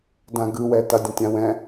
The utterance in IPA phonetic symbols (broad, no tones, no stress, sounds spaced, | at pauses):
d ã ɡ ɯ w ɛ t a dʲ ə̃ tʲ ã w ɛ̃